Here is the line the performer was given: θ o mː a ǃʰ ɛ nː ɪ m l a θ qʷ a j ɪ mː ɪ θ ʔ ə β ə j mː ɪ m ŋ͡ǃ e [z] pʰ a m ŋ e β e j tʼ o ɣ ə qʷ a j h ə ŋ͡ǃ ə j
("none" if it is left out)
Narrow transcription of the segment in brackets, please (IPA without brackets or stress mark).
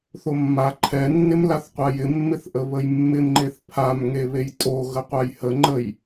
θ